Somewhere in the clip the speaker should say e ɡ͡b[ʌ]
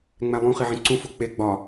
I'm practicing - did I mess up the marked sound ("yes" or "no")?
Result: yes